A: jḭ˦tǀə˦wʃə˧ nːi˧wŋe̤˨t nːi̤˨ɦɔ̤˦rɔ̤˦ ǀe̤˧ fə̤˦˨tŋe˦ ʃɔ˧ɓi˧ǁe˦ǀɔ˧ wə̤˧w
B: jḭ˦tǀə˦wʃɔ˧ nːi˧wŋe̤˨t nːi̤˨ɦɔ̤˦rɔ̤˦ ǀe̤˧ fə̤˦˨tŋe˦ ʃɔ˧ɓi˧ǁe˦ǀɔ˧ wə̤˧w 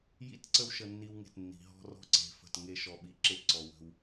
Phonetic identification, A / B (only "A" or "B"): A